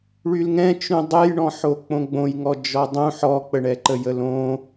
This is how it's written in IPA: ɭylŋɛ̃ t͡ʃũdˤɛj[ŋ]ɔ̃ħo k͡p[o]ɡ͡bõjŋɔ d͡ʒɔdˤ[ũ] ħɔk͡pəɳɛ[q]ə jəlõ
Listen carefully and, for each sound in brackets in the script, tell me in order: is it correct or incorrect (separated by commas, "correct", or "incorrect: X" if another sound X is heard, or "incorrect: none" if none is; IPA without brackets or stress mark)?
incorrect: ɳ, incorrect: õ, correct, incorrect: ǃ